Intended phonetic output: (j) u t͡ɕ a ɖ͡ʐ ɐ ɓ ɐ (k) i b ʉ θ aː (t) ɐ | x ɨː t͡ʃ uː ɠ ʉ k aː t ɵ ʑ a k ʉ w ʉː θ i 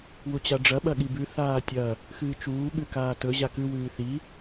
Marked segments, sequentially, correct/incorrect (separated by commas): incorrect, incorrect, incorrect